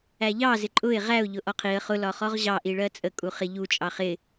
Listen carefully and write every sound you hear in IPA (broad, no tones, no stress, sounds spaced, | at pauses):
æ ʎ ɑ z ɪ ǃʼ ʊ ɪ̯ ʁ æ ʊ̯ ʎ ʊ ʔ ɔ qʰ i ə̯ χ ʊ l ɒ χ ɔ ʁ ʑ ɑ ʔ i ɭ ɜ t͡sʼ ə kʼ u χ ɪ ʎ u t͡ʃʼ ɑ χ ɪ